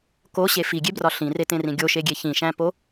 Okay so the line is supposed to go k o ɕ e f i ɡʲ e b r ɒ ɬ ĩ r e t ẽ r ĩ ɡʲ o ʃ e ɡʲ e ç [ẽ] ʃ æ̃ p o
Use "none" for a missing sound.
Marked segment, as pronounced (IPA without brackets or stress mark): ĩ